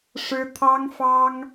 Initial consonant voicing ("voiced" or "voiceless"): voiceless